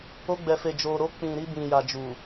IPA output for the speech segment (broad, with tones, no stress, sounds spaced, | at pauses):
o˧ ɡ͡b ɛ˨ f e˨ d͡ʒ o˨ ɾ o˧ k͡p ĩ˨ ɾ i˧ b ĩ˨ j a˨ d͡ʒ u˨